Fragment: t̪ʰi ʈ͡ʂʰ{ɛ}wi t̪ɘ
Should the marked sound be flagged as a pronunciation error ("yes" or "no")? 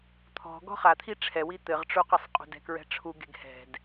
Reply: no